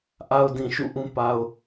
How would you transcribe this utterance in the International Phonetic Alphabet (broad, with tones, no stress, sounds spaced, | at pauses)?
ʔ a˨ ʊ̯ d ĩ˨ ʃ ṵ˦˨ ʔ ũ˦ p a˨ ʊ̯